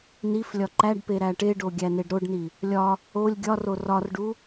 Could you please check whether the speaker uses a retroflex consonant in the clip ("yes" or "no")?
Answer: yes